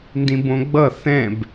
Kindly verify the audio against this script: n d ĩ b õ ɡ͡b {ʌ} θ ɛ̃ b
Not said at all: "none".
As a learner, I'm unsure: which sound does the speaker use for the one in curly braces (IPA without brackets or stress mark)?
ʌ